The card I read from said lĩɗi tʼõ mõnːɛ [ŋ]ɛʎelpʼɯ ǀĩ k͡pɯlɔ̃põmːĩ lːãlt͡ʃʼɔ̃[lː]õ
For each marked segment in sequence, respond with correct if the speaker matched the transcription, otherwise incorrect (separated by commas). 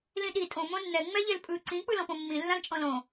incorrect, incorrect